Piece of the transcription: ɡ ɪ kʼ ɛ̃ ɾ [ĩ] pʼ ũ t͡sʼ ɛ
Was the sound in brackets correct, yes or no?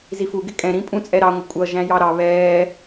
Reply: yes